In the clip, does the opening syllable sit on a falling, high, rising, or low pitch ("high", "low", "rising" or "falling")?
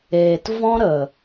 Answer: low